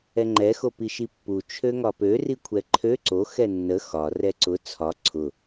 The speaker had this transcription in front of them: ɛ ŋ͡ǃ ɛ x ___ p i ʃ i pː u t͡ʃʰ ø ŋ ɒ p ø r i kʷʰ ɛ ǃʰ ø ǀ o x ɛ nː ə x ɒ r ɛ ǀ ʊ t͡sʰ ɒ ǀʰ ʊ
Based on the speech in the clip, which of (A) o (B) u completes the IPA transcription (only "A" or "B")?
A